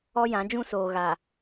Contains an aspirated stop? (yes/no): no